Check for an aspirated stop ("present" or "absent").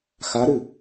absent